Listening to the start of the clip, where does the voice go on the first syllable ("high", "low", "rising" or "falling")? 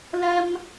high